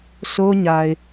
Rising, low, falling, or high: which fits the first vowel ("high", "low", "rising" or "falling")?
high